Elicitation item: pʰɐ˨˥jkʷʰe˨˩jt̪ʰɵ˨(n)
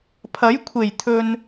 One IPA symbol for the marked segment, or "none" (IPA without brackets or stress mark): n